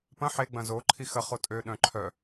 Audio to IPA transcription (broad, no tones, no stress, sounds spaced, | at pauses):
p ɐ̃ ħ e ɡ͡b ɐ̃ z o ǃʰ i x ɐ χ o tʼ ø ɗ œ̃ ǃʰ œ